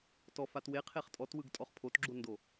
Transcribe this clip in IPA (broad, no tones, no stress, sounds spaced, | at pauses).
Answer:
t ɔ f a t w e qʰ e χ tʼ ɔ t w ɯ ɡ tʼ ɔ χ pʰ o t ɡ͡ǁ o n d o